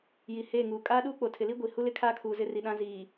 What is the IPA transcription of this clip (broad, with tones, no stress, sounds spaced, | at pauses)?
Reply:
j i˨ h eː˦˨ ŋ uː˨ kʼ aː˦ ɗ uː˦ k͡p o˨ tʰ ɪ˨ l i˦ ɡʷ i˨ h u˦ l ɪ˦ kʰ aː˦ kʰ uː˨ z ɪ˦ r i˨ ɗ ã˦ z iː˨